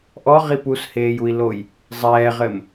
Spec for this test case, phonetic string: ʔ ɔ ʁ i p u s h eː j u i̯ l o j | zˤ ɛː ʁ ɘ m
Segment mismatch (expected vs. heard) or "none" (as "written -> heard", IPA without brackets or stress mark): none